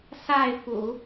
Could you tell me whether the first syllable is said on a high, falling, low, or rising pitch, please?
falling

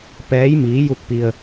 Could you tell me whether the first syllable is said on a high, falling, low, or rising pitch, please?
rising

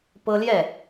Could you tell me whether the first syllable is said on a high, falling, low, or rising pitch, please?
high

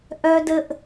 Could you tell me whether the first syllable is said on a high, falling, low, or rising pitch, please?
high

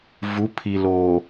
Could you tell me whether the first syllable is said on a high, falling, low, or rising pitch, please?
rising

